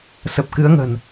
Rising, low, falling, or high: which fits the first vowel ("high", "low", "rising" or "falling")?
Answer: low